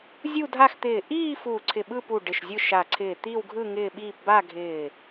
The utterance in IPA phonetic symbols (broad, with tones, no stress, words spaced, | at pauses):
zʲu˥˧dʱa˥˧xt̪ɪː˧˩ ʔiː˥˧ fuː˧˩ǀʰɪ˧˩ ɓɯ˥˧pu˧˩ ɖɪ˧˩ʃzʲɯ˥˧ʃa˧˩ ǀʰɪː˧˩t̪i˥˧wɡʱɯ˥˧ ŋɪː˥˧ɓiː˥˧p ba˥˧ɡʱɪː˧˩